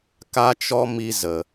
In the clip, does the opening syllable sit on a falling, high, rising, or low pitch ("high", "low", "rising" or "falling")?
high